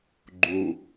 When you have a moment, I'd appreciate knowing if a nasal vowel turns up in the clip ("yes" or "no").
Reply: no